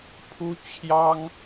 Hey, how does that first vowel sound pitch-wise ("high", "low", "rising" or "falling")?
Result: high